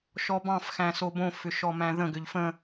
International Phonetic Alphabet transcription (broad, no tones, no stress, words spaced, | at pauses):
ʃɔbɑ̃fxæ̃ sobõfʏ ʃɔmæ̃ðə̃ɡʏʎ fə̃